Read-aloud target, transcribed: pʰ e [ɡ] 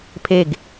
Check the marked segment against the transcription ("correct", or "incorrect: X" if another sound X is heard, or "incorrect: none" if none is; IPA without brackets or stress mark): correct